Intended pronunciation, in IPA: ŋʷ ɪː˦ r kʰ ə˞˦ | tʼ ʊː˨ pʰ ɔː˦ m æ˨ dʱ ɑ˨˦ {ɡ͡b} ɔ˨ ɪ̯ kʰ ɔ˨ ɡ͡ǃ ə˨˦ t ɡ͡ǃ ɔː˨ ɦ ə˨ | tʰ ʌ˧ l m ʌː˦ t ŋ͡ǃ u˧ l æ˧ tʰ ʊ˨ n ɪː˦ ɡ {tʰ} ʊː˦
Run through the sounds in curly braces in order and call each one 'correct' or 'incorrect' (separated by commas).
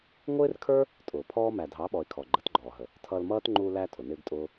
incorrect, incorrect